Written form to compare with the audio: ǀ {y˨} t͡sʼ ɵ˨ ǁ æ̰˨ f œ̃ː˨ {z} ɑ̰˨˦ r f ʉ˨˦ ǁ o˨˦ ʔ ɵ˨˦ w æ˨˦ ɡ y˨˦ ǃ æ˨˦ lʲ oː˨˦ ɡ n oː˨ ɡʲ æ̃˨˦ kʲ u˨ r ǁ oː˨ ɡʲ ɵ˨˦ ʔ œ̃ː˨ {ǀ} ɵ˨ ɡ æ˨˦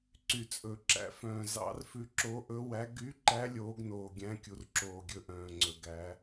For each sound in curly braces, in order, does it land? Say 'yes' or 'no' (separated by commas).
yes, yes, no